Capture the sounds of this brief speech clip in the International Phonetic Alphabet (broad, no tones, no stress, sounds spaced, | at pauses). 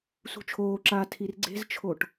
s ṳ t͡ʃʰ oː ǁ aː tʰ i r ɡ͡ǀ e̤ z t͡ʃʰ o ʈ